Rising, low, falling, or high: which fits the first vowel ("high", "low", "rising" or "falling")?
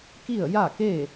falling